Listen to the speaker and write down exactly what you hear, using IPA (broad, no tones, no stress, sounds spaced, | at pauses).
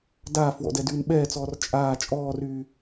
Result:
d aː f w ɔ̰ d ɛ d yː n ɓ ɛː t͡s ɔː r t͡ʃʼ aː t͡ʃʼ ɔː r yː